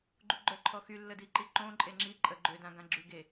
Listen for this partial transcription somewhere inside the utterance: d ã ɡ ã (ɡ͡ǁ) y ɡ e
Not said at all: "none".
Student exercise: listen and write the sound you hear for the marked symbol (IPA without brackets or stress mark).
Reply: ɡ͡ǁ